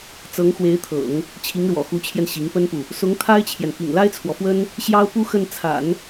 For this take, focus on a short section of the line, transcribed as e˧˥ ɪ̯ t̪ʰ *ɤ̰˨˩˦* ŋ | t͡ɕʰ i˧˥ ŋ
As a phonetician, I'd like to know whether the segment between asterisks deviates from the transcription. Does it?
no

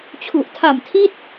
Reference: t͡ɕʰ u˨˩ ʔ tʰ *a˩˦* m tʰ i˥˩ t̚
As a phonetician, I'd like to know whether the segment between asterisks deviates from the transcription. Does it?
yes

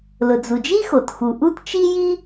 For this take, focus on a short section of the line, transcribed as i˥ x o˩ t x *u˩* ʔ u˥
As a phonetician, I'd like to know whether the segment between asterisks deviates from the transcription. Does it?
no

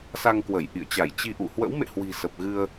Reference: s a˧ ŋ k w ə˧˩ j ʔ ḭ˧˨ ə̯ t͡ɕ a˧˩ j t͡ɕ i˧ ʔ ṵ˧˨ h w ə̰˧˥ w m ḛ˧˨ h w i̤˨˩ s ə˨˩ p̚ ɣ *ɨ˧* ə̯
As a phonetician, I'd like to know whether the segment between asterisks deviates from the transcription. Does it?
no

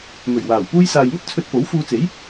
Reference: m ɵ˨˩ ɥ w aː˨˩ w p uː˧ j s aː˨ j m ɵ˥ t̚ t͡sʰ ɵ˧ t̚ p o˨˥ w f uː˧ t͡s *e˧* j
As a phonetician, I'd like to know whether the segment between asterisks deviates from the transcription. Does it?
yes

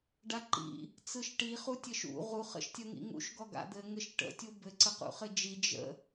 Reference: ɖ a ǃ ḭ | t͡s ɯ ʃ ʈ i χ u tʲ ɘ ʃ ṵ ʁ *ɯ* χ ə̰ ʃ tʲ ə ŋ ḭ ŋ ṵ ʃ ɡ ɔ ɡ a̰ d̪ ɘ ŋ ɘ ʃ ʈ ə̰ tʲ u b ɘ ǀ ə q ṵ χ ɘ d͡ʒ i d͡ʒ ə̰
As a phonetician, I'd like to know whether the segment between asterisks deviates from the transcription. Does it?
yes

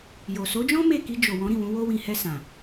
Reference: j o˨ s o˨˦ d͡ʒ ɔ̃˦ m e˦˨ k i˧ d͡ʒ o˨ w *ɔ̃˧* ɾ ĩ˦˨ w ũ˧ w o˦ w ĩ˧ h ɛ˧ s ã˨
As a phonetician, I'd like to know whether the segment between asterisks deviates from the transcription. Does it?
yes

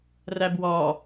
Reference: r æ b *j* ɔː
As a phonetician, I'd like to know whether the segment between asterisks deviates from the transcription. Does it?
yes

